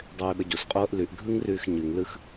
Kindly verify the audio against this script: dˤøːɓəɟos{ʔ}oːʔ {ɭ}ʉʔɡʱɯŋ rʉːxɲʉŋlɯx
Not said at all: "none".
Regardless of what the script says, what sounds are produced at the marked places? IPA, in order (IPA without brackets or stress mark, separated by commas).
qʼ, l